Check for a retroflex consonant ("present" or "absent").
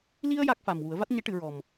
present